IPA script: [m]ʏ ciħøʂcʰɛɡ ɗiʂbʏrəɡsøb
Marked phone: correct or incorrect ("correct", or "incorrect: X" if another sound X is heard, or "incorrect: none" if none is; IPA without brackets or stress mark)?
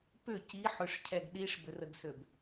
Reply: incorrect: p